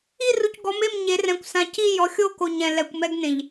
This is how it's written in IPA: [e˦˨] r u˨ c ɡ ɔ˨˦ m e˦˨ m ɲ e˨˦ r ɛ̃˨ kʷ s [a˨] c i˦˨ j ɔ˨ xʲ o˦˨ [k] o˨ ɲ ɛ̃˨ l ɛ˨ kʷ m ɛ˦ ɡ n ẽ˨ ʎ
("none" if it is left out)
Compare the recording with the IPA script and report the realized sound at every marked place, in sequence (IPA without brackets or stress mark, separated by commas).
i˦˨, ã˨, k